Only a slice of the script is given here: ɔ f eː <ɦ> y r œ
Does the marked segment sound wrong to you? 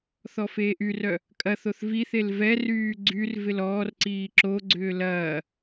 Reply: yes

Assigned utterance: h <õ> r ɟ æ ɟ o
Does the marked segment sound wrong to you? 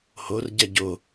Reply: yes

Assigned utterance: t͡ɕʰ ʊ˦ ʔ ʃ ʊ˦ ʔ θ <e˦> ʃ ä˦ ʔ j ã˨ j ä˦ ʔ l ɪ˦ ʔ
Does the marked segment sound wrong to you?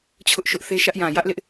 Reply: no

